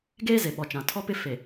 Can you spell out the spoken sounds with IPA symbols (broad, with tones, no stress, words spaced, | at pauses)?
ɡeː˦ ze˨ɓɔ˨t͡ʃã˨ tʰɔ˦pɪ˦ fe˨